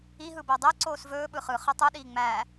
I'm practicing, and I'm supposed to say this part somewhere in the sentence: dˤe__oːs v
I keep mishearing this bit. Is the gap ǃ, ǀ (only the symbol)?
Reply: ǀ